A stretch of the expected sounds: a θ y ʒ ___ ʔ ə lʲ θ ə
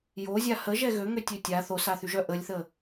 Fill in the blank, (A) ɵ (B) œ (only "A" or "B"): B